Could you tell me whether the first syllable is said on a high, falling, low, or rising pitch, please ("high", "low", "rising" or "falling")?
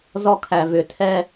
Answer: high